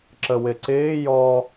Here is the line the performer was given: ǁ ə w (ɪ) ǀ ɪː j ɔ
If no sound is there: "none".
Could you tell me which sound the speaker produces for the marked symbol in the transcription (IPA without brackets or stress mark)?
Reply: ɪ